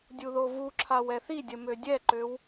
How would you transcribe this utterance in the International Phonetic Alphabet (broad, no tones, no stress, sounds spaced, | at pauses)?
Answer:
dʲ u ð o v u ǁʰ a w ɛ θ i dʲ ə m ø dʲ ɛ ǃ ø w